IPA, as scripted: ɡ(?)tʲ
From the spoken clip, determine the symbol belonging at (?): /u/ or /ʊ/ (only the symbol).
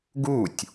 u